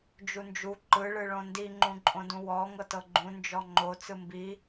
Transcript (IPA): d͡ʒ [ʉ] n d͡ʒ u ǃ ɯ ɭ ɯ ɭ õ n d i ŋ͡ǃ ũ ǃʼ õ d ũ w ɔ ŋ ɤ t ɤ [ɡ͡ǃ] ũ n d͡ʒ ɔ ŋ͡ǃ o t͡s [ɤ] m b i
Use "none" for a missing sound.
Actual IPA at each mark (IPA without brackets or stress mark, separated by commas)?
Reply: u, ɡ͡ǃ, ɯ